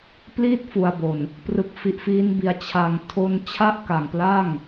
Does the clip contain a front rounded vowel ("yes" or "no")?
no